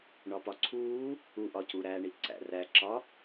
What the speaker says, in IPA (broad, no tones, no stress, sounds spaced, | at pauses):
ɳ ɒ p ɒ ǀʰ uː | u ʔ ɒ c u ɾ æ ɳ i ǀ æ̰ r æ ǁ ɒ